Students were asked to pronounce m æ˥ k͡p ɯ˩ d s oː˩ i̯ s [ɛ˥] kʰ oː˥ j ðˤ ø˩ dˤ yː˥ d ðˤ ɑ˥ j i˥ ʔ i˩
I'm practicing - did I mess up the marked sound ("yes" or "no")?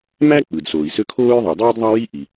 yes